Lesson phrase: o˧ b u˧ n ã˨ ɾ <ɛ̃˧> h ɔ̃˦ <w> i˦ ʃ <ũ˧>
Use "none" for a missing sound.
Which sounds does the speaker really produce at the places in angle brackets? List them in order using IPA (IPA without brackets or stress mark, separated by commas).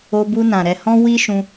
ɛ˧, w, ũ˧